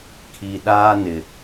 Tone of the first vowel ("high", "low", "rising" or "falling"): low